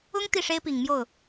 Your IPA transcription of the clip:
ʊ˥ ŋ t̪ i˥˩ ʂ e˥ ɪ̯ p i˨˩ ŋ m j o˥˩ ʊ̯

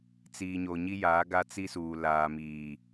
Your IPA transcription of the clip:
t͡s iː˨ ɲ o˨ ɲ i˦ j aː˨˦ ɡ a˦ t͡s i˦ s uː˨ l aː˨ m iː˨

